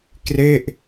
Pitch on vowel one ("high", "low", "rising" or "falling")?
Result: falling